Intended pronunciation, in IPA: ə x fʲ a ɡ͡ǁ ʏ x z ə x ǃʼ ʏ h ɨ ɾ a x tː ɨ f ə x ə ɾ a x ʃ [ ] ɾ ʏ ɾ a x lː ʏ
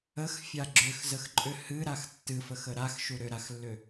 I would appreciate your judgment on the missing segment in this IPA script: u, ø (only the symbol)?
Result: u